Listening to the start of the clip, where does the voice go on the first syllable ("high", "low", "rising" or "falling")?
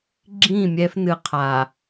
falling